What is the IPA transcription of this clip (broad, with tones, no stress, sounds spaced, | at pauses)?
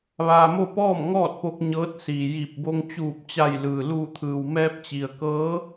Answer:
ʋ aː˧ m o˥˨ p ɔː˥˨ m ŋ ɔː˥˨ t̚ p o˧ k̚ ɲ ɤː˧˥ t̚ s iː˩ j iː˧˩ p̚ b o˧ ŋ t͡ɕ uː˧˩ p̚ t͡ɕ a˧˩ j l ɯː˩ l uː˧˩ t̪ʰ ɯː˩ w m ɛː˧ p̚ t͡ɕ i˩ ə̯ k ɤː˧˥